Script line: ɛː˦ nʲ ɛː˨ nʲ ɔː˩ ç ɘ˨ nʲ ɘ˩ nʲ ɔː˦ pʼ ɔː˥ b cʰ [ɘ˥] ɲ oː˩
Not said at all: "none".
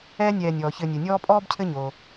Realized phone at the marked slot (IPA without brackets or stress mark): ɘ˥